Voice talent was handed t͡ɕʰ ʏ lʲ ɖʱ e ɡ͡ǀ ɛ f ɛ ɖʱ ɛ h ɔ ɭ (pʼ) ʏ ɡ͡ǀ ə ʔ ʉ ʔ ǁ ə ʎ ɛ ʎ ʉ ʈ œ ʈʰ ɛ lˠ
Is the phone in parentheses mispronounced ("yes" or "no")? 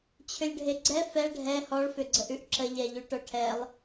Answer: yes